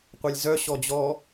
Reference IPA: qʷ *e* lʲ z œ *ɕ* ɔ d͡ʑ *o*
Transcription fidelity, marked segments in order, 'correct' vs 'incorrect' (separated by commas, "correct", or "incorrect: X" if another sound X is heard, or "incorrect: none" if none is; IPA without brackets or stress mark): incorrect: ɛ, correct, incorrect: ɔ